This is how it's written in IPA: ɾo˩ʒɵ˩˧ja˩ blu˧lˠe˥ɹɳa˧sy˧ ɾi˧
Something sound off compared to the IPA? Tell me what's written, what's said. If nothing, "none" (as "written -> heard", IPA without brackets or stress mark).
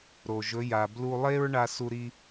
y˧ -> u˧